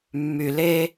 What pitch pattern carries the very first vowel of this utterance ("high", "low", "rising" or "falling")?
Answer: low